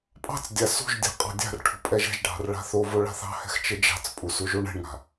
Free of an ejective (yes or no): no